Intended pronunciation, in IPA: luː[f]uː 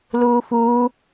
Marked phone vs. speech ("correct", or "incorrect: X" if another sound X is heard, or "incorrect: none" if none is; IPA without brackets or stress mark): correct